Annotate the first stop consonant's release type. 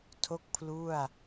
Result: aspirated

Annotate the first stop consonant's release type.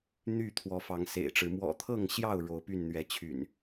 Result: aspirated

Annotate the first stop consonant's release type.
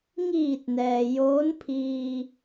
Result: plain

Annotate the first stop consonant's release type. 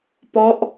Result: plain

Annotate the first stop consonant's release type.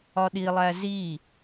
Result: implosive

